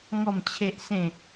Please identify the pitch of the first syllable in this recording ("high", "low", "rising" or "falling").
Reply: falling